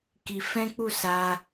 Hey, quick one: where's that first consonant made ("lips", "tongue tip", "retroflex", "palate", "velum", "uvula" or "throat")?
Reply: velum